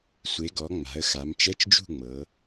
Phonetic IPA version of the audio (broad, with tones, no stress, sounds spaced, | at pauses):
sʷ e˩˧ ɡ ɔ˩˧ ŋ͡m a̤˩˧ ə̯ x a˩˧ m t͡ʃ ɛ˧˥˧ t͡ʃ d͡ʒ ṳ˥˨ ŋ͡m ɤ˩˧